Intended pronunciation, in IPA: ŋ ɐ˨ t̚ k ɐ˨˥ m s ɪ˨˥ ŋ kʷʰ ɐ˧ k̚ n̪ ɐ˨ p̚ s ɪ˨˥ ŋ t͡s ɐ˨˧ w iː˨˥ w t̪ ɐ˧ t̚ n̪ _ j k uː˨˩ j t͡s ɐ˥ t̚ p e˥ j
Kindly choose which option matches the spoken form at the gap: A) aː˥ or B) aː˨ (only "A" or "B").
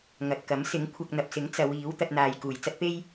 B